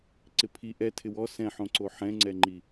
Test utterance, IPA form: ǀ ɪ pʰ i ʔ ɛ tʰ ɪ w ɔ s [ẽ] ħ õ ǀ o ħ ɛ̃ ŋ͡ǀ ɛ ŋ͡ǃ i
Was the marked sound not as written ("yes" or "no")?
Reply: yes